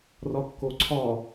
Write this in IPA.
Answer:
r ɒ kː o ǀʰ ɒ

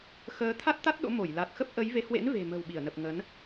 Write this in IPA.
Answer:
x əː˨˦ t̪ʰ a˦˥ t̚ t̪ a˦˥ t̚ ɗ o̰˧˥ m o˧˩ j l a˨˩ t̚ x ə˦˥ p̚ ʔ ə˨˦ j v e˨˦ h w ḛ˧˥ n v e̤˨˩ m ə̤˨˩ w ɓ i˧˩ ə̯ n ə˨˩ p̚ ŋ ə˨˦ n

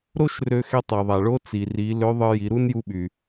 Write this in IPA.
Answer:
ɾ o˥ ʃ r ø˧ x e˧ tˤ e˩ ðˤ æ˩ ɭ o˧˥ t͡s i˩ r i˩˧ l ø˧˥ ðˤ ɯ˧ j i˩˧ ɾ u˥ n j u˧˥ ɓ y˩

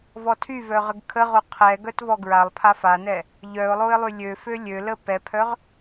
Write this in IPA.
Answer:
v ɔ tʰ y v œ ʁ ə ɡ kʰ ə ʁ o qʰ ɛ ɡ œ t v ɔ ɡ ɹ a lˠ pʰ a f a n ɛ | ʎ œ ʊ̯ lˠ o ɪ̯ lˠ y lʲ ø f ø lʲ ø l ə p ɛ pʰ œ ʁ

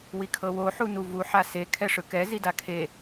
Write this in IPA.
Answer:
w i kʰ ɤ w o ħ u n u v u ħ a s e kʰ ɛ ʂ ɯ k ɛ z i d a kʰ e

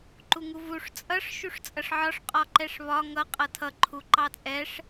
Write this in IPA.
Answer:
ǃ u ŋ u v u ʂ t͡sʼ ʌ ʂ ʃ u ʂ t͡sʼ ʌ ʂ ʕ ɒ ʂ qʼ ɒ ǃ ɛ ʂ β ɒ ŋ ʌ qʼ ʌ tʰ ʌ ǃʰ u ǃ ɑ t͡sʼ ɛ ʂ

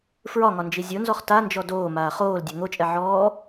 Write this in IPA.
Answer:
f ɹ ɒ ŋ ɒ n d͡ʒ i zʲ o n z ɔ χ t a n d͡ʒ ɔ d oː m aː χ oː l dʲ ɛ ŋ o t͡ʃʼ ɛ ʕ ɔː

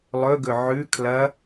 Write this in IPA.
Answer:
lˠ ɵ ɡ ɵ ʕ ʉ kʰ l ɐ

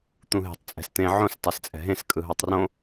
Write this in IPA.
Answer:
t̪ ũ ɦ e̤ tˤ t͡sʼ ɛ̤ s t̪ ẽ ʕ õ s tˤ e s t͡sʼ ɛ̤ ɦ ẽ s kʼ ɯ ɦ o tˤ r õ

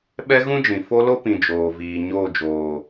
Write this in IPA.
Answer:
ɓ ɛ˦ ɣ ũ˦ d͡ʒ ĩ˨ f o˦ l o˦ p ĩ˨ d͡ʒ oː˨ v iː˨ ɲ oː˦˨ d͡ʒ oː˨

